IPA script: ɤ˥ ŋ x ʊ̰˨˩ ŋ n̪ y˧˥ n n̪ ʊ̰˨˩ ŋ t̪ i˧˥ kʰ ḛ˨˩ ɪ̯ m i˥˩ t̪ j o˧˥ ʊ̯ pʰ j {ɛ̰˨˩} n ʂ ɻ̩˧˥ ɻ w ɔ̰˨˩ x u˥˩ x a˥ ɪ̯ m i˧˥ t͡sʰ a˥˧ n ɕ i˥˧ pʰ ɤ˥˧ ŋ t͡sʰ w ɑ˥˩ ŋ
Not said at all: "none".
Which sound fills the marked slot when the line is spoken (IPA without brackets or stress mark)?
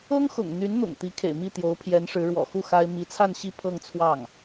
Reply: ɛ˧˥